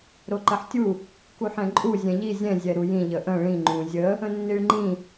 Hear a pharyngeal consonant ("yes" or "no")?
yes